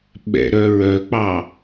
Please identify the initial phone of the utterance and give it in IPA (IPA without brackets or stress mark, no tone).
ɓ